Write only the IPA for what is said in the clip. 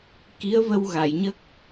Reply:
ki˧˥ə̯və˧wɣa˨˩˨jɲə˦˥k̚

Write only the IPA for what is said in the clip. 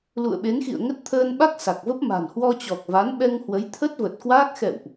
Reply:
lṵ˧˨ə̯ɓe˨˦nxḭ˧˨ə̯ŋə˦˥t̚ t̪ʰəː˧nɓa˦˥k̚ sa˨˩k̚və˦˥p̚ ma̤˨˩nhwɔ˧t͡ɕɔ˨˩k̚va˨˦n ɓɛ˧ŋhwə˨˦j t̪ʰə˦˥t̚və˨˩t̚kwaː˦˥k̚ xɛ̰˧˨wʔ

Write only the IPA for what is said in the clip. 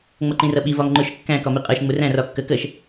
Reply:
ŋ͡mʌǃĩrʌɓi vɒŋŋ͡ǃʊʃ kːæ̃ kɒmiqʼɜʃ ŋ͡mʊræ̃ rɒkːɜkɜʃ

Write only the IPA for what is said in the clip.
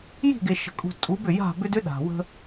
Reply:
ji̤˦˨ ɡe˨ʃə̤˨kʼṳ˨ tʼu˨˦bʏ˨ja̤˦˨bʏ˦d ʏ˦ɗa̤˨wə̤˦

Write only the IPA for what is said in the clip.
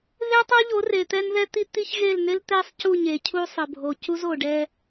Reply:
ðe˦tˤo˦ʎo˨˦r e˨t̪ɛ˦nðɛ˦ t̪i˦t̪i˦ç ɣe˦˨lne˦lt̪ɛ˦sˤ cu˦˨ɲe˨ cʰu˦sˤə˨bʱo˨ cu˦zo˨ɖɛ˦

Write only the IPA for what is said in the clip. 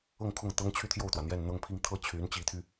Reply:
ɤ˥˧ŋkʰʊ˥˩ŋt̪ɤ˥ŋ t͡ɕʰy˥˧t̪ʰjo˥˩ʊ̯t̪wä˩n̪jɛ˥˧n n̪ɤ˥˧ŋpʰi˥˧ŋ t̪ʰɤ˥˩t͡ɕʰy˧˥nt͡ɕi˧˥t̪ʰy˧

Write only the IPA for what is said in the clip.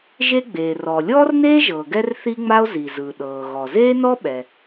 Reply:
ʒe˥ɡ͡beː˩rɔː˩ lʲɔː˥rneː˥ʒɤː˩ ɡɛ˥rθi˥ŋ͡ma˥o̯ zi˩ zɯ˩ɗɤː˩ ɣɔ˩zeː˥nɔ˥ ɓɛ˩

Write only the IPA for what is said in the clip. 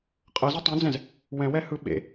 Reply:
qʼɤzɤ tˤẽd͡zɛ̃z | wɛ̃wɛhɯ ɓḛ

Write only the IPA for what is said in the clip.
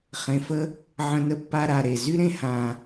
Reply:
χẽ˧fə˥ | ʕə̃˧nə˧ pːa˥ɾa˧ɾe˨˩ zy˥ ɾẽ˥hã˧

